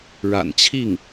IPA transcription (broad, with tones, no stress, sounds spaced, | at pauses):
ɻ a̰˨˩ n t͡ɕʰ i˥˩ ŋ